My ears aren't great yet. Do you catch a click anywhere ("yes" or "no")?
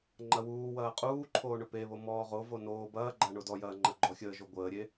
yes